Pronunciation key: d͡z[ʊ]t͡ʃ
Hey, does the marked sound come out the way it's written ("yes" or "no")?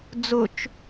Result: yes